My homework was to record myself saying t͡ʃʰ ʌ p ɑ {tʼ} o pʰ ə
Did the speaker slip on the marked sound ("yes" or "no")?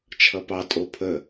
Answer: no